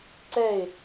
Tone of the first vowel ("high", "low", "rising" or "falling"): falling